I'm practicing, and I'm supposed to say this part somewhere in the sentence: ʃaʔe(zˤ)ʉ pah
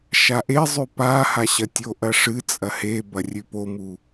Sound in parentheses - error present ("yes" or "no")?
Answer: no